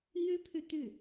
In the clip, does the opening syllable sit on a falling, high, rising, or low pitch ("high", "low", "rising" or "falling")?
high